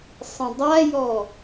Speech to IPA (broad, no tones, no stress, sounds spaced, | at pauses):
sˤ ə̃ dˤ a j ɔ